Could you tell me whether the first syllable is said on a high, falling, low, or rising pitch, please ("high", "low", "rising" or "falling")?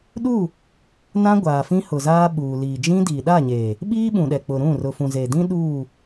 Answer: falling